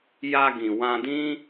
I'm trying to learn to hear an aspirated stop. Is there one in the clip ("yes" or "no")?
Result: no